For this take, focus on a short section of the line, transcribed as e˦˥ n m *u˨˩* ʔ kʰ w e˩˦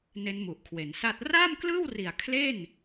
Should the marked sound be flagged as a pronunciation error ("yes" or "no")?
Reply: no